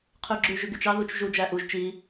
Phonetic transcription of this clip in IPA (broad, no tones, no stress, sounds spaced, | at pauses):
qʰ ʉ ɡ͡ǁ ʉ ʒ ʉ ɡ y t͡ʃ ɑ ð u t͡ʃ ʒ u d͡ʒ æ ʔ u ʒ t͡ʃ i